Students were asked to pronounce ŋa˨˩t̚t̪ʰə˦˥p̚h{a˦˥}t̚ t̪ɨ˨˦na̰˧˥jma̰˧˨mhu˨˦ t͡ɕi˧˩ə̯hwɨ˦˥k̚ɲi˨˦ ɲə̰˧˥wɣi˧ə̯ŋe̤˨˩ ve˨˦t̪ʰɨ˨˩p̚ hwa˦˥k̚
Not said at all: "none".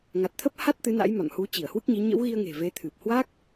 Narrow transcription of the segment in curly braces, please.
a˦˥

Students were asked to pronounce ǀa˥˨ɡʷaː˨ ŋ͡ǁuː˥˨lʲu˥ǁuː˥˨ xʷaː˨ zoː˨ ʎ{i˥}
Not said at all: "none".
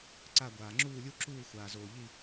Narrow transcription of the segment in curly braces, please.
i˥˨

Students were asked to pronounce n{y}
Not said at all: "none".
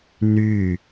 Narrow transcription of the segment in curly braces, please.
y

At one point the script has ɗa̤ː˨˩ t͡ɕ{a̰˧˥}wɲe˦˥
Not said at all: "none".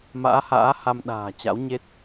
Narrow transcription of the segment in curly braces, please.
a̰˧˥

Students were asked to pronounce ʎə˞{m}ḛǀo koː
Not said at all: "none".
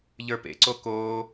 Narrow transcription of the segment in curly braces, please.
p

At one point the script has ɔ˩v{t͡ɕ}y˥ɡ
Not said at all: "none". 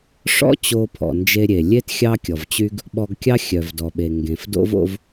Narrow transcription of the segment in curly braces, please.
t͡ɕ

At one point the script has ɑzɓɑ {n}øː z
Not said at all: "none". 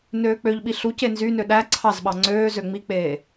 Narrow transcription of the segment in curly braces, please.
ŋ͡ǀ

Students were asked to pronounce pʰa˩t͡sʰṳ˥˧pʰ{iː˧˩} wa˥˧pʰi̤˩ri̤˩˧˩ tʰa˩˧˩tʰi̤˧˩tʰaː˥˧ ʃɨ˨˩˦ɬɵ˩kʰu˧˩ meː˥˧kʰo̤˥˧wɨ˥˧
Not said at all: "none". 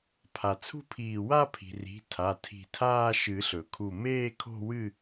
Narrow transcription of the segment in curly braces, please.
iː˧˩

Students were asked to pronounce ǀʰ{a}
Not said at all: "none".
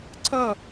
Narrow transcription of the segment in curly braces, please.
ʌ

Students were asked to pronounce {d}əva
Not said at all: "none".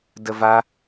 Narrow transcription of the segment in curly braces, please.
d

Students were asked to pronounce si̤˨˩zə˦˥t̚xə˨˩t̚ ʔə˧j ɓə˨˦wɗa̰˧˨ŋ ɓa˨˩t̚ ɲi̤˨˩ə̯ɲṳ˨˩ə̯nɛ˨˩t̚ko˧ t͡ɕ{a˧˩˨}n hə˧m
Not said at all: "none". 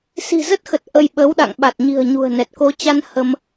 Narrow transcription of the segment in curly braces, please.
a˧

